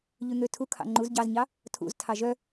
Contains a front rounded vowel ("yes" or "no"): yes